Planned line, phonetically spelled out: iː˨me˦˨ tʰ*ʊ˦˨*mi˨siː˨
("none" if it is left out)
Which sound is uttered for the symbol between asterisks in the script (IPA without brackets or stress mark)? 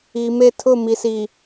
ʊ˦˨